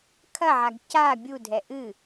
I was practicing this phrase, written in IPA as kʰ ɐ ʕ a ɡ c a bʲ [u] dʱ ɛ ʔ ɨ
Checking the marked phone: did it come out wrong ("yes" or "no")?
no